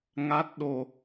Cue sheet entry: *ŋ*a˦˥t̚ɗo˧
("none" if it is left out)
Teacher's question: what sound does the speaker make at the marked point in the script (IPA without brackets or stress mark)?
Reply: ŋ